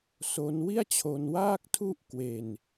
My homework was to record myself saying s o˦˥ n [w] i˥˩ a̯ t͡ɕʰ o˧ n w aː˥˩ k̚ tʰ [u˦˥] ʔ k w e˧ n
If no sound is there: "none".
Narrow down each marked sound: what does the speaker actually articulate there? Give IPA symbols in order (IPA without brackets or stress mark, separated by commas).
w, u˥˩